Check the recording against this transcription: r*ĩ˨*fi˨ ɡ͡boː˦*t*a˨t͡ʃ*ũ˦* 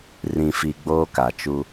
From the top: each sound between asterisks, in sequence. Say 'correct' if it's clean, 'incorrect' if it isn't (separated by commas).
correct, incorrect, incorrect